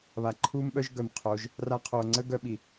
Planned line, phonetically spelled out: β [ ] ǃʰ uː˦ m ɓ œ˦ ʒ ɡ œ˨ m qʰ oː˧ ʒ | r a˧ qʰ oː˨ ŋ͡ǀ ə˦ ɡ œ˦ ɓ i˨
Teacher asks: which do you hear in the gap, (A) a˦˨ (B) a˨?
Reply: B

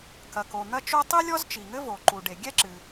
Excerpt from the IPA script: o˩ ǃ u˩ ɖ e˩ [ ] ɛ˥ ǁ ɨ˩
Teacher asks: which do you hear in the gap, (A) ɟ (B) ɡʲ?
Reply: B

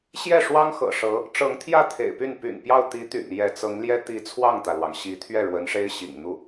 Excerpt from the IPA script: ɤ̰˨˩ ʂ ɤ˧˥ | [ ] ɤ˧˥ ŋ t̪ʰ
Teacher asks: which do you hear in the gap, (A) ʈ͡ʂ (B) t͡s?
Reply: A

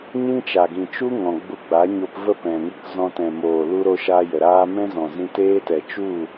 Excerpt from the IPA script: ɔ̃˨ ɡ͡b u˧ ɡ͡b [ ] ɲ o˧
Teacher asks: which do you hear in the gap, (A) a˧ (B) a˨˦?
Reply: B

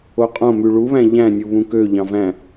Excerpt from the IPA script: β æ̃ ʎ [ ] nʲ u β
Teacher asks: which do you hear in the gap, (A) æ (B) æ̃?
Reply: B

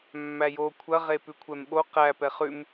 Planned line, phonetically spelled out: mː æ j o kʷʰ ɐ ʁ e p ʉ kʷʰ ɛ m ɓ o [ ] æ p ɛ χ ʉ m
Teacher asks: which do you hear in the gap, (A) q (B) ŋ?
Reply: A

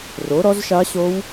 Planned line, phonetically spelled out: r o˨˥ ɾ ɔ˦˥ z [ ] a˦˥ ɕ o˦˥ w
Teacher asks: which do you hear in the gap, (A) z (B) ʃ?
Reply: B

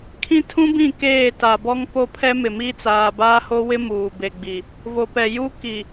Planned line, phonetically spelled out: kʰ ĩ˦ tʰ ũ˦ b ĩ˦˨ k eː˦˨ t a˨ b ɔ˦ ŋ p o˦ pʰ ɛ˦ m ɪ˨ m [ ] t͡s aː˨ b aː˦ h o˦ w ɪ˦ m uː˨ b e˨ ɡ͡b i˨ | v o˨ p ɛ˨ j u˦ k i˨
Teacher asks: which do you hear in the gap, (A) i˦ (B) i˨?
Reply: A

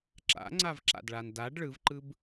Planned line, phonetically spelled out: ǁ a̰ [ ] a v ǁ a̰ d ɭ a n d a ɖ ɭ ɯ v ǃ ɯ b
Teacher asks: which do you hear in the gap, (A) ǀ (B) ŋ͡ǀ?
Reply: B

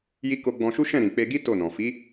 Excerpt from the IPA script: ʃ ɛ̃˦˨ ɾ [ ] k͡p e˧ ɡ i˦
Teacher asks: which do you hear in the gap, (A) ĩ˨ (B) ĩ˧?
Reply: A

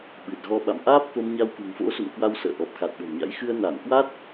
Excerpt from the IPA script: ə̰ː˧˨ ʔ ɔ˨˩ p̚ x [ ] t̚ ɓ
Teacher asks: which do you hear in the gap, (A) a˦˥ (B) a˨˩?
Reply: B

